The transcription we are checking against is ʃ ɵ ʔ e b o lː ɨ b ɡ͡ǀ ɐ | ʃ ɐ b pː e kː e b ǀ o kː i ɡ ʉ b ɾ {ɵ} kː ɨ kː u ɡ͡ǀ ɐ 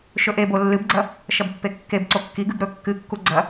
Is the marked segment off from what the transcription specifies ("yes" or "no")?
no